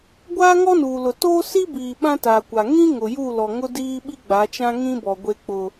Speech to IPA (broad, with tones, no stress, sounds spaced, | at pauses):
ɡʷ aː˦ ŋ ɔ˦ n uː˨ l ʊ˨ t oː˦ s i˦ b iː˨ ɓ ã˦ t aː˨ kʷ a˨ ŋ ĩ˦ ŋ ʊ˨ j u˦˨ l ɔ˨ ŋ ʊ˦ d iː˦ ɓ i˦ ɡ͡b a˨˦ t͡ʃ ã˦ ŋ ĩ˦ b ɔ˨ ɡʷ e˦ k͡p ʊ˦